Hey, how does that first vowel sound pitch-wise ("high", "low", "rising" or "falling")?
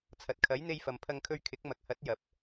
low